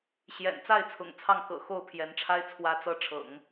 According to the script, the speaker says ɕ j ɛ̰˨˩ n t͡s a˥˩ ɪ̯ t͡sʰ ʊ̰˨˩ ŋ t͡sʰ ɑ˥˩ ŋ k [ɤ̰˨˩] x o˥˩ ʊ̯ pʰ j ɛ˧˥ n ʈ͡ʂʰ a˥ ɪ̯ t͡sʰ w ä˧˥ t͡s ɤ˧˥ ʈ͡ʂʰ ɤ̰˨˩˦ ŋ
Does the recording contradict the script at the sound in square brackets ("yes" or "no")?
no